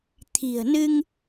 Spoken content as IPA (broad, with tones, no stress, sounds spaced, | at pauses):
t̪ʰ i̤˨˩ ə̯ n ɨ˧ ŋ